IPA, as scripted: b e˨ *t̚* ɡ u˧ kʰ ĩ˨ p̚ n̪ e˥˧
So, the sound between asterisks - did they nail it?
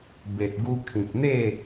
yes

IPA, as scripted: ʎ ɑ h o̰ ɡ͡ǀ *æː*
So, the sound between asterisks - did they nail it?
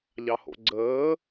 no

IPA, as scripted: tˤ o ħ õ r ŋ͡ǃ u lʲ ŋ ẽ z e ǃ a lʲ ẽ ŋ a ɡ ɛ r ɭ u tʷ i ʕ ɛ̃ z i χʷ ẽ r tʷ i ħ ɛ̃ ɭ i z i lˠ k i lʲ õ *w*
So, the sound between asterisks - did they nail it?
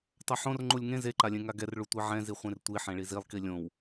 yes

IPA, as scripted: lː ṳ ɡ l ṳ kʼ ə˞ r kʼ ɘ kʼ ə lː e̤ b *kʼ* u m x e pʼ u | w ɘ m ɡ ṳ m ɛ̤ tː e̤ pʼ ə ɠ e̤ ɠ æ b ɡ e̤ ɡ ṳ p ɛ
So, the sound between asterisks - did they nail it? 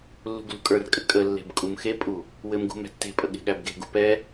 yes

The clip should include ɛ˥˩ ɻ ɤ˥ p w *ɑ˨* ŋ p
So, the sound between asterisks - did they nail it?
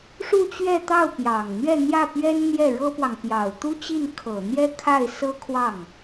yes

